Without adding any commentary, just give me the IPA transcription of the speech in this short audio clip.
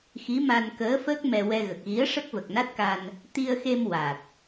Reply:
x i˧˥ m a˧ n k əː˧˥ f əː˦˥ k̚ m ɛ˧ w ɛ˧ ɣ ə˨˩ k̚ ɣ i˧˥ ə̯ ʂ ə˦˥ k̚ v ə˨˩ k̚ n a˦˥ t̚ k a˧ n | t̪ i˧ ə̯ x e˧ m w a˨˩ t̚

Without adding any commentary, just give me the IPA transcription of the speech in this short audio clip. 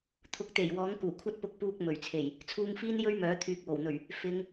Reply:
t̪ʰ ʊ˨˥ k̚ t̪ e˨˩ j w ɔː˨˥ ŋ k uː˨˩ kʷʰ ɐ˥ t̚ p ʊ˧ k̚ p uː˧ k̚ m ɵ˨˩ ɥ t͡sʰ e˨˩ j | t͡sʰ uː˧ ŋ f iː˥ n j ɵ˥ ɥ m œː˨˥ t̪ʰ yː˨ k̚ w o˨˩ w n̪ ɵ˨˩ ɥ | f ɪ˨˧ ŋ

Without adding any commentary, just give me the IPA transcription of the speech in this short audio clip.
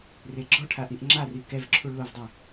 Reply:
r e ɡ͡ǁ ɔ ʈʰ a ʔ i ʔ ŋ͡ǁ a r i k ɛ v ǁʰ u ɭ l o v dˤ ɪ

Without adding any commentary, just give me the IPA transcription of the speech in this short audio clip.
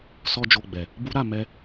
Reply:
s ɔ˦ d͡ʒ o˧ ɡ͡b ɛ˨ | b u˦ ɾ a˧ m ɛ˦

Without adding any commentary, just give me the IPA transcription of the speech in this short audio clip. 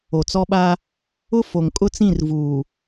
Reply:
o˨ t͡s ɔ˦ ɓ a˦ | ʊ˦ f o˨ ŋ kʼ ʊ˦ t͡s ĩ˦˨ r v uː˨

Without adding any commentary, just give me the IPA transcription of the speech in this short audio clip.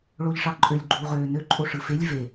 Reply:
ɭ o ʎ ʂ ɑ ǃʼ ø lʲ ɡ͡ǃ uː ʁ øː n ø ǃʼ o ʂ ɯ f e lʲ v e

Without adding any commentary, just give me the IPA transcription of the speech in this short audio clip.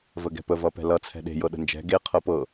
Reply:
v ə ɡ ɛ̤ p ə v ʌ p ɛ̤ l ʌ t͡sʰ ɛ̤ ɗ e̤ j ɤ ɗ ə̤ n d͡ʒ ɛ̤ ɡ e qʰ ɤ p ɤ

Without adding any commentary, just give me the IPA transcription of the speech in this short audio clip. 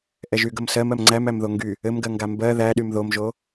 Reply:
ʔ ɛ ʒ y ɡ ə m s ɜ m ɜ m ŋ͡ǀ æ m æ m ð o ŋ ɡ y | ɘ m ɡ ɜ ŋ ɡ a m b ɜ ð æ ɗ y m ð o m ʒ o

